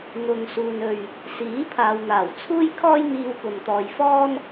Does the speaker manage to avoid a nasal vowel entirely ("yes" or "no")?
yes